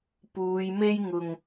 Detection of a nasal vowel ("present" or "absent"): absent